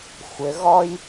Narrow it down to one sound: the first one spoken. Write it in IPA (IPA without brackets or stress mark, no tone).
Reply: xʷ